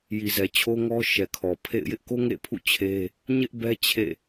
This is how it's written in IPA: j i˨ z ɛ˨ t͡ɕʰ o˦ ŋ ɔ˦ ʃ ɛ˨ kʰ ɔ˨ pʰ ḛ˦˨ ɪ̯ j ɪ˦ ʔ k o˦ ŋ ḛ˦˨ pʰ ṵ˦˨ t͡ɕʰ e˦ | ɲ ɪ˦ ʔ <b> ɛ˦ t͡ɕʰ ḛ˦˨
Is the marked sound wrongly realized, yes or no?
no